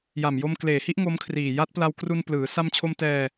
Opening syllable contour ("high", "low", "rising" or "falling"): low